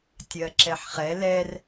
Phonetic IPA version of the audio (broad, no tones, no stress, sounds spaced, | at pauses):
tʲ ɜ ǁ ɛ ħ χ ɛ l ɛ r